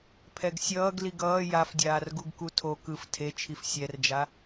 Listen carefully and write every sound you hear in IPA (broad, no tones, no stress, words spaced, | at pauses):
pʰɛɡsʲʌːɡ liɡʌː jafdʲaːr ɡuɡkutʰo kɯf tʰe t͡ʃʰifsʲɛrd͡ʒa